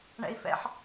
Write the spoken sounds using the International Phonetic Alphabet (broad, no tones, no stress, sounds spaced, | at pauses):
ɳ ɛ̰ i̯ f ɛ̰ ħ